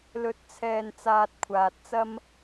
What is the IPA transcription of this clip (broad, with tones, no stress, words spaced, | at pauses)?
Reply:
lɵ˨t̚t͡sʰɛː˨n t͡saː˧t̚kʷʰaː˨t̚t͡sɐ˥m